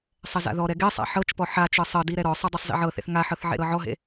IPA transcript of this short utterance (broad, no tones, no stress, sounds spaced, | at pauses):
sˤ ɛ z a̰ ð ɔ ɾ ɛ ɡ e sˤ a̰ ħ ɤ t͡ʃ p ɔ ħ a t͡ʃ ɤ sˤ ɤ d i ɾ ɛ ɾ ɔ sˤ ɯ dˤ a sˤ z ḭ ʕ ɤ θ ḛ θ ŋ a ħ ɤ θ ʕ ḛ ɾ ɤ ʕ ɔ ɦ ḛ